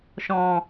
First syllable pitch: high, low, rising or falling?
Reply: low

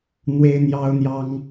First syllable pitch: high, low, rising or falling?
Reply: high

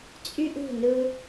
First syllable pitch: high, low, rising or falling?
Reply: high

